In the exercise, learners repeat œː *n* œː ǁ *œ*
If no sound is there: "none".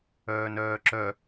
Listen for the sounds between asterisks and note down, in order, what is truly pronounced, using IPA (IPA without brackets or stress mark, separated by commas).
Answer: n, œ